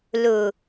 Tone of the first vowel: low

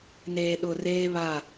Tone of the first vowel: low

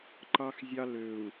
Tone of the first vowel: high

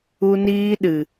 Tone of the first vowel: high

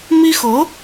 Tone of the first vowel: high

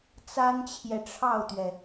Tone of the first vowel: high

